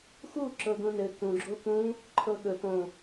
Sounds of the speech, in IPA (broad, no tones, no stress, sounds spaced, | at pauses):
x u ǁ ɤ ɡ ũ n ɘ k ũ ɡ͡ǁ o k ũ | ǃʰ ɤ ɠ ɵ p õ